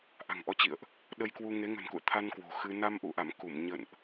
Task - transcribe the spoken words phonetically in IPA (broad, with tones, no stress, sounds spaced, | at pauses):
ʔ a̤˨˩ ŋ ʔ ɔ˨˦ t͡ɕ ḭ˧˨ ə̯ ʔ | ɗ ə˧ j k w u˧ ŋ e˨˦ ŋ ə̤˨˩ n k ṵ˧˨ ə̯ t̪ʰ a˧ n k w o̤˨˩ x ɨ˧ n a˧ m ʔ ṵ˧˨ ʔ a˧˩ m k u˧˩ m ɲ ə̰˧˨ n ʔ